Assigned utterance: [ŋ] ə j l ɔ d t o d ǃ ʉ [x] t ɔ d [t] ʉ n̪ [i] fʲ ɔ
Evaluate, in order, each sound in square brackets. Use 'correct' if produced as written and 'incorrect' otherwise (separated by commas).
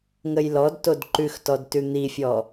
correct, correct, correct, correct